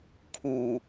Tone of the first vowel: low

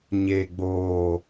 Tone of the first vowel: low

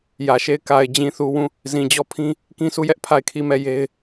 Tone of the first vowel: low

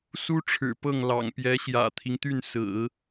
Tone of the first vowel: high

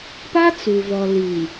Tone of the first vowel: high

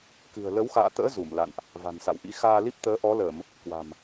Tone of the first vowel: low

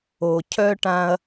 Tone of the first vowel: low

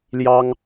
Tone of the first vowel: high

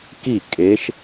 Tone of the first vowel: falling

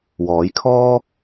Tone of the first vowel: rising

